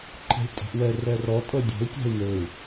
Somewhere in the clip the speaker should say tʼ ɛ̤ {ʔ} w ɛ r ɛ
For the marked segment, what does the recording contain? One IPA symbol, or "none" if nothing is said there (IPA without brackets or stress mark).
ʔ